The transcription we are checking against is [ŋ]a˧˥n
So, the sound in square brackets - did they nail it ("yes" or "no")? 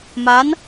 no